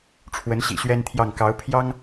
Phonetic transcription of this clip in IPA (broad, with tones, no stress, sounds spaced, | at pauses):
ʈ͡ʂʰ w ə˧˥ n ɕ ḭ˨˩ ɕ ɥ ɛ˥ n t̪ʰ j ɑ˥˩ ŋ k ɑ˧˥ ʊ̯ pʰ j ɑ˥ ŋ